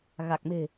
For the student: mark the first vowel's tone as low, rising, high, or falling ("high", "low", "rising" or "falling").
low